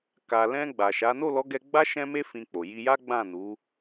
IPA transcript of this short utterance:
k a˨ l ɛ̃˧ ɡ͡b a˨ ʃ a˨˦ n o˦˨ l ɔ˨˦ ɡ ɛ˧ ɡ͡b a˦ ʃ ɛ̃˦ m e˦ f ĩ˧ k͡p o˨ j i˧ j a˦ ɡ͡b ã˦˨ n u˨˦

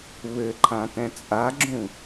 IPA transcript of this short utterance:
β ɘ ǃʰ ã t ɛ̃ t͡sʼ a ɡ͡ǁ ũ

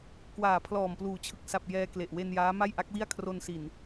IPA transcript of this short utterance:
k w aː˨˩ pʰ l ɔː˨˩ m p l uː˩˦ t͡ɕʰ ɯ˨˩ k̚ s a˨˩ p̚ j ɛː˧ k l e˨˩ ʔ w e˧ n j aː˦˥ m a˥˩ j ʔ a˦˥ k̚ w i˥˩ a̯ kʰ r o˧ n s i˨˩ n

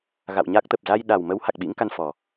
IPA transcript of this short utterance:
ɣ a̰˧˨ w ɲ a˦˥ k̚ t̪ ə˨˩ p̚ z a˧ j ɗ a˨˩ w m ə˨˦ w h a˨˩ k̚ ɓ ḭ˧˥ ŋ k a˧ n f ɔ˨˩

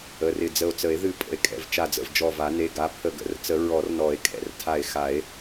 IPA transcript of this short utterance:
ə˩˧˩ r ɪ˧˩ d͡z ə˧˩ o̯ t͡s ə˨˩˦ e̯ ð ɨ˧˩ pʼ ə̰˨˩˦ e̯ kʼ ɛ̰˩˧˩ v t͡ʃ a˧˩ d͡z ə̰˧˩ v d͡ʒ ɔ˧˩ v a˨˩˦ n e˩˧˩ ɡ a˩˧˩ pʰ ə˧˩ ɡ ə̰˨˩˦ r t͡s ə˨˩˦ ɹ ɔ˨˩˦ r n ɔ˨˩˦ e̯ kʼ ɛ̰˧˩ r tʰ a˧˩ e̯ x a˨˩˦ e̯

